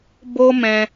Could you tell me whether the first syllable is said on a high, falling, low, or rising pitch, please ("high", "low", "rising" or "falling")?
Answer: high